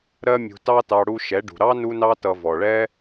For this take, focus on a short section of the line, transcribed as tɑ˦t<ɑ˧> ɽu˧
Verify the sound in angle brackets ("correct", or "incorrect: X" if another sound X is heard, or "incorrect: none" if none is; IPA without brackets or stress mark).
correct